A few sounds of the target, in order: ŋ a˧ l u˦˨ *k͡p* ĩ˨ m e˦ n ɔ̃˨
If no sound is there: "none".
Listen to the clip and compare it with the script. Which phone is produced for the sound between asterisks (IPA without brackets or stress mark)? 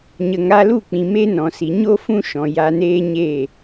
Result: k͡p